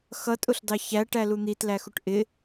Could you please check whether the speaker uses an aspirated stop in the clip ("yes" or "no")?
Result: no